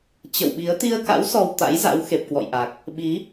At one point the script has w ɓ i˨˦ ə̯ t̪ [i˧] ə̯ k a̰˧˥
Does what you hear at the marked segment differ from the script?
no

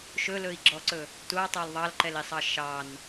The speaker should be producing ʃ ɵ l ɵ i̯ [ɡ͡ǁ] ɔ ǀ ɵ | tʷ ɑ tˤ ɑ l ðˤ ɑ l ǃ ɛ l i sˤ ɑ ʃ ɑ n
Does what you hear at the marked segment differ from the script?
no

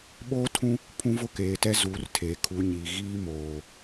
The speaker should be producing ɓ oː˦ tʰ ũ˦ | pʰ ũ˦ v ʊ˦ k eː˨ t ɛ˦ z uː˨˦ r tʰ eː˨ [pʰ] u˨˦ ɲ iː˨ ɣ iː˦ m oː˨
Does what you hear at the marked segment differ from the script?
yes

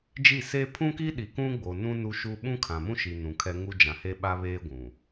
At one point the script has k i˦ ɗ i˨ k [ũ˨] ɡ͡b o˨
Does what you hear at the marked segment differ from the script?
yes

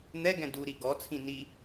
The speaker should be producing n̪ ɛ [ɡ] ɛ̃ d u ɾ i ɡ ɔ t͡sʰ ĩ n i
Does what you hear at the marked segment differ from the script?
no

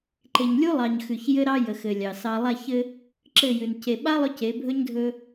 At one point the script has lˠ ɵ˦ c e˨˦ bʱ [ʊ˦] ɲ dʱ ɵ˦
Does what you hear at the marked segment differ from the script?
yes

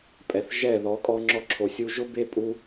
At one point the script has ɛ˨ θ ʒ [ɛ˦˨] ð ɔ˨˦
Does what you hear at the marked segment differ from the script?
no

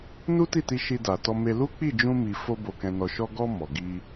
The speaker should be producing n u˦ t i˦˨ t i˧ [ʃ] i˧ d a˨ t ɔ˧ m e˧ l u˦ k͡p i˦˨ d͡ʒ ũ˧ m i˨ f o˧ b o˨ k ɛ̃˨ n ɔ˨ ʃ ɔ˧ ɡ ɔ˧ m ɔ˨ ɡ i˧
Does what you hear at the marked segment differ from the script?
no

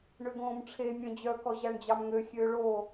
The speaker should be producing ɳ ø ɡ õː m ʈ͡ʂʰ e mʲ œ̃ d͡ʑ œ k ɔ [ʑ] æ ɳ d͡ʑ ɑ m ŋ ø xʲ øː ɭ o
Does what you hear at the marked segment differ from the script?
no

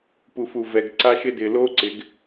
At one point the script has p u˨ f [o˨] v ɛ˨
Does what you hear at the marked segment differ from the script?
yes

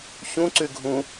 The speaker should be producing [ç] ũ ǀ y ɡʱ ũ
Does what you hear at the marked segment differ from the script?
no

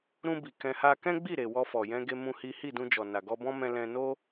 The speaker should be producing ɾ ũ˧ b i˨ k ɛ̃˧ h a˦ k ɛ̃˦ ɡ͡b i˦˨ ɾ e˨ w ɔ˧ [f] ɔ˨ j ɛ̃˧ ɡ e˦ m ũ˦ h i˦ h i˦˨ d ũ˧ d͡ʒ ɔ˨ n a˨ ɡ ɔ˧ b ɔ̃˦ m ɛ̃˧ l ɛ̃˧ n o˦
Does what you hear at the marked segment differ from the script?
no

